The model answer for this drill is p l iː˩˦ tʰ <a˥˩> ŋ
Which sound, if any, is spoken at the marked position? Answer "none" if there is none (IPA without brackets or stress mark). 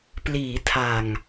a˨˩